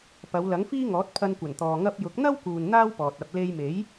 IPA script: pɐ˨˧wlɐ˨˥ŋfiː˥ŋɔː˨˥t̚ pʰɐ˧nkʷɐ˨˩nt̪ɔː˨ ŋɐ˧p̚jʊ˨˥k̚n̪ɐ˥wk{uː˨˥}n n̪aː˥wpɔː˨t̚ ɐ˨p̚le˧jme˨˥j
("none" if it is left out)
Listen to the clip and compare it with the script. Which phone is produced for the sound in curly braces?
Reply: uː˨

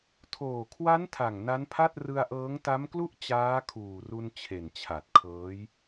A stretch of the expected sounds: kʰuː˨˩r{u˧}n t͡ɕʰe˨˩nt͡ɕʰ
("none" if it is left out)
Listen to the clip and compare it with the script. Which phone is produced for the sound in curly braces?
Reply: u˧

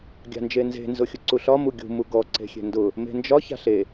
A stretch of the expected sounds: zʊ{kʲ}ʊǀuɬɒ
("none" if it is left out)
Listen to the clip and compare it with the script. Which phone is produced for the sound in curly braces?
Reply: xʲ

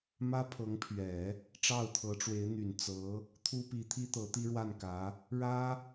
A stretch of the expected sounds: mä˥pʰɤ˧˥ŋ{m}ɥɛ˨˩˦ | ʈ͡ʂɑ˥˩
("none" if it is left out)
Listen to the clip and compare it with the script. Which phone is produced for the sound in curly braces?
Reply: pʰ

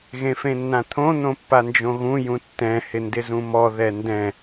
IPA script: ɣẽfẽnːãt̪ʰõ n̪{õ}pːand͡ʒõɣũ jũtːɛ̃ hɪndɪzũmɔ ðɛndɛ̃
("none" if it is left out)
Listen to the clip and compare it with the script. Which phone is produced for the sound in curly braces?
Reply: õ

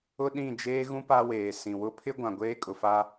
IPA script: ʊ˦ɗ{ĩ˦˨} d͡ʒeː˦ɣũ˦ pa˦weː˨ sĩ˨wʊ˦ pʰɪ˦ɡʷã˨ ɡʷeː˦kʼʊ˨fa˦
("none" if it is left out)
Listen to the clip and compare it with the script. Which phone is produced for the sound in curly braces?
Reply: ĩ˦˨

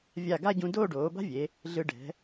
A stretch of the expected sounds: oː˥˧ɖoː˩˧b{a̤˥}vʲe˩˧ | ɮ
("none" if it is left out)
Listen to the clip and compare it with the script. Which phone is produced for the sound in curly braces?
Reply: a̤˥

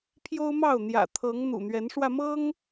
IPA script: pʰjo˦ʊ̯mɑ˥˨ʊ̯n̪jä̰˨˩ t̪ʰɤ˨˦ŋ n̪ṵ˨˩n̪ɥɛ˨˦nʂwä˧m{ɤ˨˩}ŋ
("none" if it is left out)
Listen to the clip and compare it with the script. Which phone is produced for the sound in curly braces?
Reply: ɤ˦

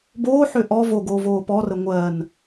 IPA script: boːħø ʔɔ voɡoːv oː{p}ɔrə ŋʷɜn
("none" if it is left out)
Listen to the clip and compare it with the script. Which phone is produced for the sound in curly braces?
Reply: p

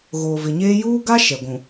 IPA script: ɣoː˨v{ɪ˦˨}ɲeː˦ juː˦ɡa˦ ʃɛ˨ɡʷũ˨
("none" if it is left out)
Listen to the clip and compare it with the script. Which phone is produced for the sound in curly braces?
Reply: ɪ˨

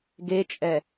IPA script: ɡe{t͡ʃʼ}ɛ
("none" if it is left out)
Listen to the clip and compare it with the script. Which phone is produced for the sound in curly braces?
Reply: t͡ʃʼ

